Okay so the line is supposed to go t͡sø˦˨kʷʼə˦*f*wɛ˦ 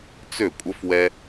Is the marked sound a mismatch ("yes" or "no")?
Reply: no